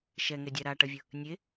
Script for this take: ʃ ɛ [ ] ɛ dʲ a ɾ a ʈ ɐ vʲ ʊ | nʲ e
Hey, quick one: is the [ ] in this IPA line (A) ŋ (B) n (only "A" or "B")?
A